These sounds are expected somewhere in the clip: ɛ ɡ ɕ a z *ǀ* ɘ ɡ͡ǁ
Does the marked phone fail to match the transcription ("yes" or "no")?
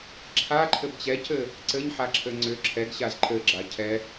yes